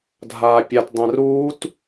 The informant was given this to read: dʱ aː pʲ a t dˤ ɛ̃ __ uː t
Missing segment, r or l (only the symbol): r